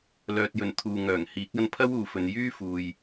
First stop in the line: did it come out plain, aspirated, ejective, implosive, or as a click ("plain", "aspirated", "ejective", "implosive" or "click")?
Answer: plain